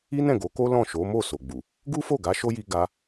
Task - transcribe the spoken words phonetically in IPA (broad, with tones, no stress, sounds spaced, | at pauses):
i˦ n ɛ̃˦˨ ɡ o˨˦ k o˦ l ɔ̃˦˨ ʃ o˨˦ m o˦˨ s o˨ ɡ͡b u˨ | ɡ u˦ f o˦˨ ɡ a˨˦ ʃ o˦ j i˧ ɡ a˦